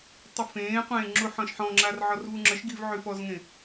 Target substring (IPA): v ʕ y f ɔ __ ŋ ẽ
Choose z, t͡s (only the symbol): z